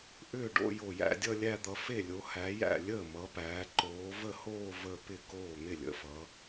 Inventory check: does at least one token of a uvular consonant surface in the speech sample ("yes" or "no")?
no